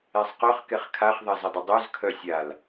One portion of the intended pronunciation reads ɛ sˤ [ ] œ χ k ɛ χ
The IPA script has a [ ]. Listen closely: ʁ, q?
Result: q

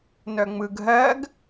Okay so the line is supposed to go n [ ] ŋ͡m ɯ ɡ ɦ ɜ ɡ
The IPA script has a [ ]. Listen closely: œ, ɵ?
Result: œ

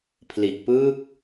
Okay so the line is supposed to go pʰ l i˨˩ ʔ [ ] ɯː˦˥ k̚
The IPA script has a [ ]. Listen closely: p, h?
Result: p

